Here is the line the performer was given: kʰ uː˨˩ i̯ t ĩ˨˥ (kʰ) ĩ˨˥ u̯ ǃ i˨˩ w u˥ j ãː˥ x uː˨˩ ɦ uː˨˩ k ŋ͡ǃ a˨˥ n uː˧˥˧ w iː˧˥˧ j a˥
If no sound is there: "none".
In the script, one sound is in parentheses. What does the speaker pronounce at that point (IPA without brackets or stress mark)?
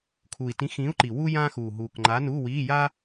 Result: x